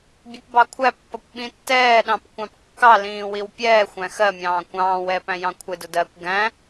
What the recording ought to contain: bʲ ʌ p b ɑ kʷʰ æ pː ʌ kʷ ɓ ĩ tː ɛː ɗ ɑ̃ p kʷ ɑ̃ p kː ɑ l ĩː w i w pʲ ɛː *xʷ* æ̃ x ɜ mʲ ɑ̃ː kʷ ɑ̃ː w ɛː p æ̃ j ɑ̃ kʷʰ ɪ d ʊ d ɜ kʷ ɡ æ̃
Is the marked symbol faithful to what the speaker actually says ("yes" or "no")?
yes